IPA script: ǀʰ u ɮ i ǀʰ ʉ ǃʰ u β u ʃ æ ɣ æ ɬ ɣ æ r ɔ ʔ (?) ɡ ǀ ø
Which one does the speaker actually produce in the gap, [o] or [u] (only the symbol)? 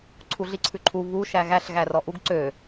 u